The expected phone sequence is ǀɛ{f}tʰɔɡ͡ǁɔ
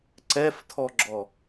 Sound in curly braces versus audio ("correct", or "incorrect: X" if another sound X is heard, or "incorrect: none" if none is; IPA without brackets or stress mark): correct